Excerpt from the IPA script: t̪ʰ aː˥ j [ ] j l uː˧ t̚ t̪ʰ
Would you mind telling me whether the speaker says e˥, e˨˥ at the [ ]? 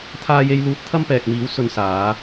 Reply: e˥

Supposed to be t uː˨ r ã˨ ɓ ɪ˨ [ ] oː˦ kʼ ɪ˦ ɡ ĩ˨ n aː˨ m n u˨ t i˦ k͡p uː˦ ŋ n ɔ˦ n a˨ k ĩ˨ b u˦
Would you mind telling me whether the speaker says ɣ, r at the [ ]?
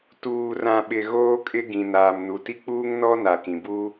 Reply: ɣ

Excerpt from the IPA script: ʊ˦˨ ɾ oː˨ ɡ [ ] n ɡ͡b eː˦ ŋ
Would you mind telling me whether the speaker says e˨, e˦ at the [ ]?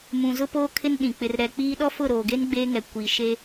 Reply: e˦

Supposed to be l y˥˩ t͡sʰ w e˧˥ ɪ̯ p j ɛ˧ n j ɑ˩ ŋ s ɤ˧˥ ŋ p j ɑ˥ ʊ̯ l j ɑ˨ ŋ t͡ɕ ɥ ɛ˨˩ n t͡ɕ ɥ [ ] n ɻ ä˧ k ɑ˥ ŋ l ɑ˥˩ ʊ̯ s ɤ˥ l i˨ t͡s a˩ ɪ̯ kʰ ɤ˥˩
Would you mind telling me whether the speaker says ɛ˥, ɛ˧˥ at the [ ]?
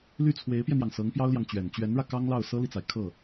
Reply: ɛ˧˥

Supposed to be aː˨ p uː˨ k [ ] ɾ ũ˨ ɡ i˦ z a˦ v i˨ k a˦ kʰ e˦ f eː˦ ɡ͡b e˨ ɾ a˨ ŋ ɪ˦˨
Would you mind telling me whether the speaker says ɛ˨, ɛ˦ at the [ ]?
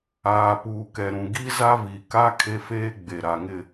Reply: ɛ˨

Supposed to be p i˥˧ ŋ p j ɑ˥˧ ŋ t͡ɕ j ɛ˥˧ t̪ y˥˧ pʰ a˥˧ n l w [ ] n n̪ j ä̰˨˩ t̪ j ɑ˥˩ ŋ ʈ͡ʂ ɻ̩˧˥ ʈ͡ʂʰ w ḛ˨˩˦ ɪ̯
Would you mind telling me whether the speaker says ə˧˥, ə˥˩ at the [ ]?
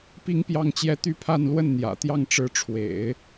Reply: ə˥˩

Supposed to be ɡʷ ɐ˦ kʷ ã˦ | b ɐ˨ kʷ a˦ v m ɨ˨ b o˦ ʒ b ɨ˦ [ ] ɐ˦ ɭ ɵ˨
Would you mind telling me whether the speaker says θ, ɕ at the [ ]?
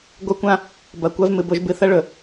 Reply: θ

